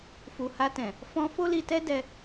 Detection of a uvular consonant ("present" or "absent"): absent